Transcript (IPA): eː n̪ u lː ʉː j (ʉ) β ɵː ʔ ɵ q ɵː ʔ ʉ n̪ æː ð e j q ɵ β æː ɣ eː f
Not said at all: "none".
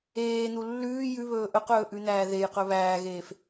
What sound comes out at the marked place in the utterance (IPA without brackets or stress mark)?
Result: ʉ